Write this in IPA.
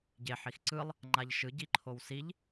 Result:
ɟ e ħ i x ǀ ɯ lˠ | ŋ͡ǃ a ʎ ʃ ɯ ɟ i ǃʰ o w s i ʎ

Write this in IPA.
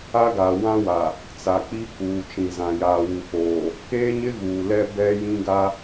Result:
a˦ ɡ a˨ w ã˦ w a˨ | t͡s a˨ k͡p i˦ k uː˨ t͡ʃ ĩ˨ z ã˨ j aː˨ w u˨ f oː˨ | k eː˦ ɲ ɪ˦ ɣ uː˨ l ɛ˦ b ɛ˦ j ĩ˦ ɡ a˦

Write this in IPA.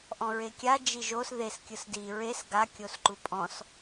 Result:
ʔ ɔ̃ ɹ e kʲ a d͡ʒ i ʒ o s ð e s kʲ ɯ s d i ɹ e s ɡ a kʲ o s ǃ u pʼ ɔ̃ s

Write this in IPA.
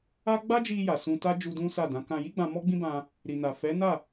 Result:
a˦ ɡ͡b a˦ d͡ʒ i˧ j a˨ s ũ˧ t a˦ d͡ʒ u˧ d ũ˦ s a˦˨ d ã˨˦ k ã˧ j i˦ ɡ͡b ã˧ m ɔ˦ ɡ͡b ĩ˦ b ã˧ | ɾ i˨ n a˨ f ɛ˨˦ n a˦˨

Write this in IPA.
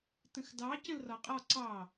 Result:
t ə̃ x d ɑ c ə̃ l r ɒ qʼ ɒ ǀ ɑ

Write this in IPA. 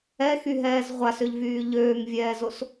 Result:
ɛ x y ɦ ɛː z ʁʷ a s ø ʎ v yː ʎ øː ŋ vʲ ɛː z o s

